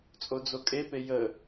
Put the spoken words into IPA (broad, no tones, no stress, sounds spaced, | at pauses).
t͡sʼ o d͡z o kʼ e p e j ə